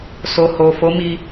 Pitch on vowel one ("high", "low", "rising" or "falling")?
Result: low